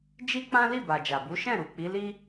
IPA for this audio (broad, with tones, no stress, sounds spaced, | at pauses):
d͡ʒ i˦ k͡p ã˦ l i˦˨ b a˨ d͡ʒ a˨ b u˨˦ ʃ ɛ̃˦˨ ɾ u˨ k͡p i˨˦ l i˦